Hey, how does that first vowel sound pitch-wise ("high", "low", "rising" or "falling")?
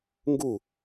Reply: falling